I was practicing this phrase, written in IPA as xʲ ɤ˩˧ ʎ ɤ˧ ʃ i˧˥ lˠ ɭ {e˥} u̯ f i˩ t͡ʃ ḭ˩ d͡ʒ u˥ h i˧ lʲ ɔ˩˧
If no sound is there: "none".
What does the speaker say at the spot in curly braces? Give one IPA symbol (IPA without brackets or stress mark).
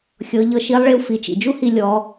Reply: e˧